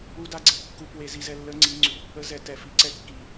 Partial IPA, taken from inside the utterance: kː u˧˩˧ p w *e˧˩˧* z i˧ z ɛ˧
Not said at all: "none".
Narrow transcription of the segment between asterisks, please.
e˧˩˧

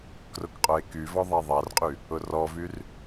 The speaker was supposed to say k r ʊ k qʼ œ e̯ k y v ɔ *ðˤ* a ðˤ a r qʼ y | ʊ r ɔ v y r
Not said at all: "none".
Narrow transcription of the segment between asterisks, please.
ðˤ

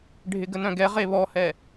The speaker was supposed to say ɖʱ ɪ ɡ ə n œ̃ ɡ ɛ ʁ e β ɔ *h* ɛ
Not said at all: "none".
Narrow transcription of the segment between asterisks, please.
h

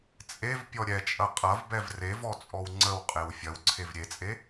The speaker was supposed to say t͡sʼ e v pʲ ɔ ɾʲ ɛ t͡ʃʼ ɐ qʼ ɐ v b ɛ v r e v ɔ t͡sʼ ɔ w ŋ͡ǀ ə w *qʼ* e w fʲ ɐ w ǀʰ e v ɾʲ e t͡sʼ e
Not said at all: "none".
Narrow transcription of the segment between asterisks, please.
qʼ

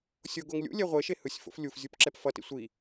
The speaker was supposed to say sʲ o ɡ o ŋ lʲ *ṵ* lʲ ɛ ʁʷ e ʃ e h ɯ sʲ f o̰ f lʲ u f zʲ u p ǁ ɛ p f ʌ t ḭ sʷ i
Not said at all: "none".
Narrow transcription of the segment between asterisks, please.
ṵ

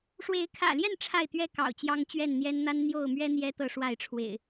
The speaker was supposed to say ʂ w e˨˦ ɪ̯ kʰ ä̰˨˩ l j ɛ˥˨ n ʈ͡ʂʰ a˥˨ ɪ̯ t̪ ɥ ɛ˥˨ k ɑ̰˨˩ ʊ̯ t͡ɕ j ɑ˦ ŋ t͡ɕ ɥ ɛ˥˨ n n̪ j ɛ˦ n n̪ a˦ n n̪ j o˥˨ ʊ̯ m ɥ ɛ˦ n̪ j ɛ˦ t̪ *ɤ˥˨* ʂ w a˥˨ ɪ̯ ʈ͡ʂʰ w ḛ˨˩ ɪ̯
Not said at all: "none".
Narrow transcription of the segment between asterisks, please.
ɤ˥˨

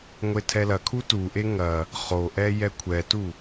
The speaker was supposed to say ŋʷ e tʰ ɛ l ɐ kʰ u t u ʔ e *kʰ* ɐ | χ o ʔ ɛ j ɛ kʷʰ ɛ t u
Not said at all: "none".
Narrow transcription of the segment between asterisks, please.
ŋ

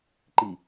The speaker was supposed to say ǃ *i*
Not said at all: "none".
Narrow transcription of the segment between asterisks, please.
i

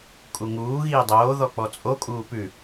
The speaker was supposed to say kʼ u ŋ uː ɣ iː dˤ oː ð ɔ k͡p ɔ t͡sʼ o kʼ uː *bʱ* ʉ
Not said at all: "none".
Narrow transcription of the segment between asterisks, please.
p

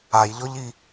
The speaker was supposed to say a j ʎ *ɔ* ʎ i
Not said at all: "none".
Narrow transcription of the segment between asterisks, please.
ɔ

